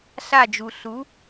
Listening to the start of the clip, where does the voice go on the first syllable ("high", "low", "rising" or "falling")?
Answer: falling